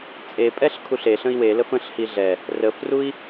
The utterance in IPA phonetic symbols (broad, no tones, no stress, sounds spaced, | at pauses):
t͡sʼ e pʼ ɛ ɬ kʰ u ɬ e ɬ ə̃ i̯ w e l ə f ə̃ ɬ h i ɮ ɛ | r ə f r u i̯